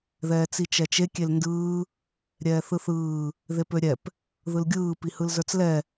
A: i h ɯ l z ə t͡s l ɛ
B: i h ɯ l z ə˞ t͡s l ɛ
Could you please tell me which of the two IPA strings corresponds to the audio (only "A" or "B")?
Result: B